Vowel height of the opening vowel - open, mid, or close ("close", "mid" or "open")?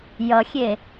mid